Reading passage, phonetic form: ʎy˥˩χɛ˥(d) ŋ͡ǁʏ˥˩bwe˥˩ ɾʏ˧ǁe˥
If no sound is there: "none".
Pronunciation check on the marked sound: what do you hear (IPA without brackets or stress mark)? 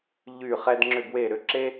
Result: d